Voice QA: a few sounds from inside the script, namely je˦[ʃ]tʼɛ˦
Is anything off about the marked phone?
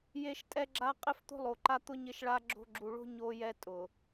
no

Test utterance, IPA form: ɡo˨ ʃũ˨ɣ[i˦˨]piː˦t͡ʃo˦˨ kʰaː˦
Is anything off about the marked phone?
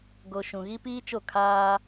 yes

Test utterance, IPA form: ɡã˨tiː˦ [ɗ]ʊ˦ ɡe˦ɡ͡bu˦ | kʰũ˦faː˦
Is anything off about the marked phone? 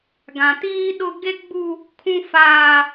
no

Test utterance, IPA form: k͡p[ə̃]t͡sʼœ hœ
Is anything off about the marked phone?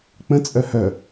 no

